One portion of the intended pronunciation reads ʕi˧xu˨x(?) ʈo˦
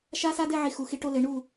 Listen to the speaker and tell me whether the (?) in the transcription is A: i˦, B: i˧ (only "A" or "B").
B